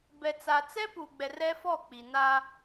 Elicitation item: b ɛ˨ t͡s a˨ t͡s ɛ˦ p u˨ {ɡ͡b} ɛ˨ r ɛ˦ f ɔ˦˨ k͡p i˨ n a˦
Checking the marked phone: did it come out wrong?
no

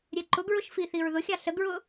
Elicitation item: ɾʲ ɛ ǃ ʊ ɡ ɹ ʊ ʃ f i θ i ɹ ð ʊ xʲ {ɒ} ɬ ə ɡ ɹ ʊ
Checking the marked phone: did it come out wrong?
yes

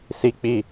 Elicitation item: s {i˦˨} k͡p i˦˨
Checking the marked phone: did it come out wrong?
yes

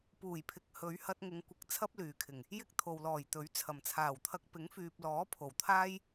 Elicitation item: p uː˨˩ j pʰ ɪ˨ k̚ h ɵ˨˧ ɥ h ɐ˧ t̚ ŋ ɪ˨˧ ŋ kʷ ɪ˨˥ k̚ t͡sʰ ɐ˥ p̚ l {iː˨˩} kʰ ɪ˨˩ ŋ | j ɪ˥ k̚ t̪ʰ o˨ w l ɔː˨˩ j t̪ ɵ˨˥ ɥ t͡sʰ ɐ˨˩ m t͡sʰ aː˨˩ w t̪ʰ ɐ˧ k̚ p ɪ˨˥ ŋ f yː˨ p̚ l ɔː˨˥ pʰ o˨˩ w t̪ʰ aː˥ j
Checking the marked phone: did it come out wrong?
yes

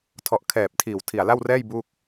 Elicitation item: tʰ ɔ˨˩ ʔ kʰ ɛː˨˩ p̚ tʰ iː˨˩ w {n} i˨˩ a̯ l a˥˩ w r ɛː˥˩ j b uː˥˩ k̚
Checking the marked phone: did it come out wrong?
yes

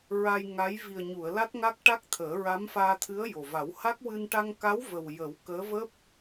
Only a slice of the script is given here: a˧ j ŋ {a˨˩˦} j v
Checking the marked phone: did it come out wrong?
yes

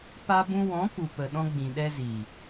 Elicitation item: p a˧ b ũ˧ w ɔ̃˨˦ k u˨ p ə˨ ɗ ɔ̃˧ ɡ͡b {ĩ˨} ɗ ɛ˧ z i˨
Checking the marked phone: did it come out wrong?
no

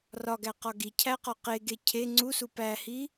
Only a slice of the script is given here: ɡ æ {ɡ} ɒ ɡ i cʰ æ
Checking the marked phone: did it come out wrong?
yes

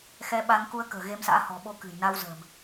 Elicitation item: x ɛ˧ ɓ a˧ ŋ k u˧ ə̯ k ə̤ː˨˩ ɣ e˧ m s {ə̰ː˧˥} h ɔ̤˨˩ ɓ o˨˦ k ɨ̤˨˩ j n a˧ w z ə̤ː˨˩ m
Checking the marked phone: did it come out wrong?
yes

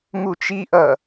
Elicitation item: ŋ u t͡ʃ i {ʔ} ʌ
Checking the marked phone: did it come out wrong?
no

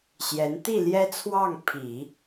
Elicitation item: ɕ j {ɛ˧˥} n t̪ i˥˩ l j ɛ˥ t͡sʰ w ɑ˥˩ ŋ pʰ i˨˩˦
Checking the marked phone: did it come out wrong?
no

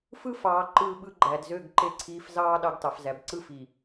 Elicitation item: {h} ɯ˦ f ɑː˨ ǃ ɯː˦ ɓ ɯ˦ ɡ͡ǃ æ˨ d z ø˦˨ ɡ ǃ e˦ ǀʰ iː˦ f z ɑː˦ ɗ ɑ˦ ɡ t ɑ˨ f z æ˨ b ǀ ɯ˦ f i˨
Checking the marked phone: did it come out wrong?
yes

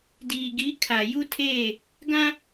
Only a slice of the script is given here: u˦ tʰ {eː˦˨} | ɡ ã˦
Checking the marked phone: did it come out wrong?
no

